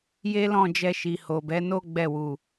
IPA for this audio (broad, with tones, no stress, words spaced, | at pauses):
je˦lɔ̃˦˨d͡ʒɛ˧ʃi˨ ho˨bɛ˨˦ no˦ ɡ͡bɛ˦˨wu˨